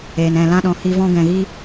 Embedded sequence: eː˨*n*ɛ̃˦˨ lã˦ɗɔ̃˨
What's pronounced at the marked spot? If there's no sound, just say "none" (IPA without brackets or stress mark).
n